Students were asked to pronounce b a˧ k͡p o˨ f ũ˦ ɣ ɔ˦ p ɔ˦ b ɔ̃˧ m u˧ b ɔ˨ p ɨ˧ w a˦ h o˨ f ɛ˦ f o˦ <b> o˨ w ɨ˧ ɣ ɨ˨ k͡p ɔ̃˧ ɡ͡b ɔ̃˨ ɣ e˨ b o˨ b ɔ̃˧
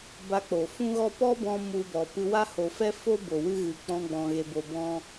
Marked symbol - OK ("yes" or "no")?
yes